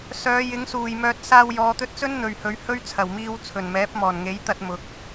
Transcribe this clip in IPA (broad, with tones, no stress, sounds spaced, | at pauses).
s œː˨˧ j ɪ˨˥ ŋ s uː˨˩ j m œː˧ t̚ s aː˧ w j ɔː˨˧ t̪ ɵ˧ t̚ t͡s ɵ˥ n n̪ ɵ˨ ɥ h ɵ˨˧ ɥ h ɵ˥ ɥ t͡sʰ ɐ˨˩ w m iː˧ w t͡sʰ ɵ˨˩ n m ɛː˨˥ p̚ m ɔː˨˩ n ŋ e˨˥ j t̪ ɐ˧ t̚ m ʊ˨ k̚